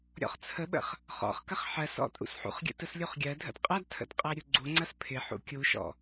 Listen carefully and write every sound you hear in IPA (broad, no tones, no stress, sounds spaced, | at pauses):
ɾʲ ɔ̰ χ t͡sʰ ə ɓ ə̰ χ | χ ɔ̰ χ k ɐ χ ħ ɜ s ɔ̰ tʼ ṵ s ħ ṵ χ ɡʲ ə̰ t ə s lʲ u χ ɡʲ ɜ dʱ ə̰ d qʼ ɐ d tʰ ə̰ d qʼ ɜ ɾʲ u ɡ͡ǀ u ŋ͡ǀ ɐ s pʰ ɪ ħ ṵ kʲ u ʃ ɔ̰